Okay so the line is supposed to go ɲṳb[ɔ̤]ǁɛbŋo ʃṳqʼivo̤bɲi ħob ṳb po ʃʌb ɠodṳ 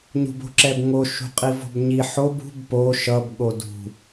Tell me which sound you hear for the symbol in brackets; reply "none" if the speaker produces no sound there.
o̤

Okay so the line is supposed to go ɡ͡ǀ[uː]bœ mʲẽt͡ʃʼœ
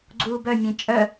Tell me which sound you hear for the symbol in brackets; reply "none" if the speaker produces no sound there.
uː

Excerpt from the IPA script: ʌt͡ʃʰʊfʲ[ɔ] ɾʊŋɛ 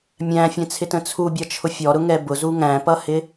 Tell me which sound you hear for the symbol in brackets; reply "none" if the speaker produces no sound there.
ɔ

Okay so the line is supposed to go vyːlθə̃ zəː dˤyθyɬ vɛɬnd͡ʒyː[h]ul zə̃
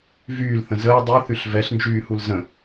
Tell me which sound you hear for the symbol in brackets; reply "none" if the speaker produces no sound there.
h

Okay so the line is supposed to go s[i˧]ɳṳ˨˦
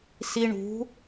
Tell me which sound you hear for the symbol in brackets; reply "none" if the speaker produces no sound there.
i˧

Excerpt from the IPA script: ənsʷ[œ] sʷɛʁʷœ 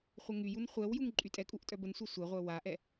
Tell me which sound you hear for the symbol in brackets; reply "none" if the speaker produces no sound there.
ɛ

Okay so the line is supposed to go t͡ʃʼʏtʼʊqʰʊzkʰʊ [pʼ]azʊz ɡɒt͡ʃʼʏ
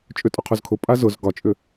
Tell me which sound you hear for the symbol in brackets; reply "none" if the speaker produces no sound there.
pʼ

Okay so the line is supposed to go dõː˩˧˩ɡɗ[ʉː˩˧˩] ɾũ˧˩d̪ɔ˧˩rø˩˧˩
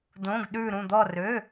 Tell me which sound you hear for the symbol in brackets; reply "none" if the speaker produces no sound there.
ʉː˧˩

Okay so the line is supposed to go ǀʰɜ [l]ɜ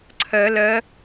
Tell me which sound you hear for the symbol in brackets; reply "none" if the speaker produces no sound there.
l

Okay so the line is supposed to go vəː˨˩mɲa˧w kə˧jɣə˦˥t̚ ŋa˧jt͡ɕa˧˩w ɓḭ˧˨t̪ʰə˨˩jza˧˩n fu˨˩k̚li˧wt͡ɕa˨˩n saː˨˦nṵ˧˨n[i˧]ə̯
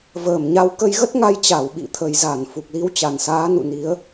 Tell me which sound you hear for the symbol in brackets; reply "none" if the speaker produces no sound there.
i˨˦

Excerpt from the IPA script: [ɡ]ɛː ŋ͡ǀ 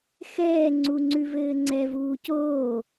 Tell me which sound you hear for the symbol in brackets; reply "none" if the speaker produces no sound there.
x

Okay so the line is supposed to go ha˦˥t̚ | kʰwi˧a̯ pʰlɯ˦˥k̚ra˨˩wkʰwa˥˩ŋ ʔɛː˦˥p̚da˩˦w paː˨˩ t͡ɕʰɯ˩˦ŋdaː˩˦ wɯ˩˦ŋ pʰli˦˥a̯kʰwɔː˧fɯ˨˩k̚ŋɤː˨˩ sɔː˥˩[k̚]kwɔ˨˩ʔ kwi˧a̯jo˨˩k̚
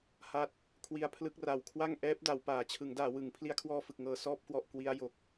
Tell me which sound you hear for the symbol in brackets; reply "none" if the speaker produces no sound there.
p̚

